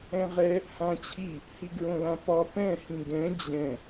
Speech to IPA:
ɛ̃ ʁ ɛ | h ã t͡ɕʰ i | h i ɡ ɹ õ l ã p ɒ p ɛ̃ h ĩ ɡ ɛ̃ d͡ʑ ɛ̃

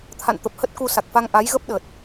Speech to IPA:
t̪ʰ a̰˧˨ n t̪ ə˨˩ p̚ h ə˦˥ t̚ k u˧ s a˨˩ k̚ f a˧ ŋ ʔ a˨˦ j ɣ ə˦˥ p̚ ɗ ə˨˩ t̚

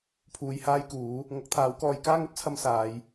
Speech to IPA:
pʰ uː˧ j h aː˥ j k uː˨˥ | ŋ ɐ˨˥ k̚ t̪ʰ aː˨˥ w k ɔː˧ j k aː˥ ŋ ɵ˥ t̚ t͡sʰ ɐ˧ m s aː˨˧ j

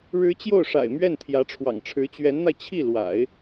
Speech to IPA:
ɻ ɻ̩˧˥ t͡ɕ j o˥˩ ʊ̯ ʂ a̰˨˩ ɪ̯ m ɥ ɛ˥˩ n t̪ʰ j ä˧˥ ʈ͡ʂʰ w ɑ̰˨˩ ŋ ʈ͡ʂʰ ɻ̩˧˥ t͡ɕ ɥ ɛ˧˥ n n̪ a˧ ɪ̯ t͡ɕʰ i˥˩ l w a̰˨˩˦ ɪ̯

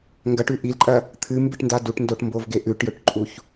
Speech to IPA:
ŋ ɡ ɐ ʈ ʉ ʔ i l ǃʼ ɐ | t̪ʰ ɨ m b ɨ ʈ n d a d u ʈ n d o ʈ m b o v ɡ e ʔ ʉ ʈ j ɵ ʈ ǃʼ u ç

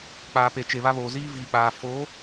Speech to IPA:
k͡p aː˨ p e˨ t͡ʃ e˨ β a˦ β oː˨ z iː˦ v iː˨ k͡p aː˨ f o˨˦

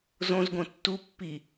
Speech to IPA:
z õ z ɡ õ tː u pː i

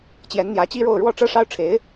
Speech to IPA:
t͡ɕ j ɛ˧˥ n n̪ j ä˧˥ t͡ɕ i˥ ɻ o˥˧ ʊ̯ ɻ w ɔ˥˧ ʈ͡ʂ ɤ˥˩ ʂ ɑ˥ ʊ̯ ʈ͡ʂʰ e˧˥ ɪ̯

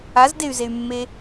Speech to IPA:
a z d e y̯ z e y̯ mː e

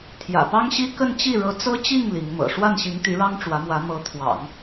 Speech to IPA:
t̪ʰ j ä̰˨˩ p ɑ˥ ŋ ɕ i˥ k ə˥˧ n t͡ɕ i˥˩ ɻ ɤ˧˥ t͡s ɤ˥ t͡ɕ i˥˩ ŋ l i˧˥ ŋ m ɤ̰˨˩ ʂ w a˥˩ n ɕ i˧˥ ŋ t̪ y˧˥ ɻ ɑ˥ ŋ ʈ͡ʂ w ä˧˥ m w ä˧˥ m ɤ˧˥ t̪ʰ w ɑ̰˨˩˦ ŋ

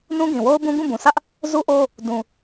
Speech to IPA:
n ũ˦ ɡ ĩ˨ w o˦ ʊ̯ b ũ˦ ɡ ũ˦˨ b ũ˨ sʰ ä˦ ʔ | z u˦ ʔ o˦ | d ũ˨

